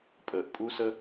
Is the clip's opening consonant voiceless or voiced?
voiceless